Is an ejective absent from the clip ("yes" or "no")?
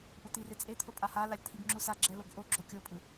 no